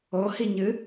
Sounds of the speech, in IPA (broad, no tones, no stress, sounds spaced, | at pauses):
o h i ɲ ɨ